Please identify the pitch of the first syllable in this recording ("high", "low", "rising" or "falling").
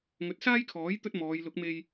rising